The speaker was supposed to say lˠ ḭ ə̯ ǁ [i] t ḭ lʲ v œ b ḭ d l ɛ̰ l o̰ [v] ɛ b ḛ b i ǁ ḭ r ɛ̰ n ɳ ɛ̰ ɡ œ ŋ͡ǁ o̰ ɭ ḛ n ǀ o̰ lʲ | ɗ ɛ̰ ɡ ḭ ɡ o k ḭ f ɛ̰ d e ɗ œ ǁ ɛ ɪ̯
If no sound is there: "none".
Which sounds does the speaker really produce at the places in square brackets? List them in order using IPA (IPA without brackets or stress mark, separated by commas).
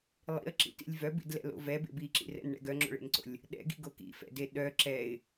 ḭ, v